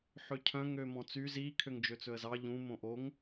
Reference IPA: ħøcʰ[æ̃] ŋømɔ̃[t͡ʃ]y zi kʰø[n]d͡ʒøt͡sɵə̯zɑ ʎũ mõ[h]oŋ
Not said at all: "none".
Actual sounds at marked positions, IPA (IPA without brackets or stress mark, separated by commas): œ̃, t͡s, ŋ, ʔ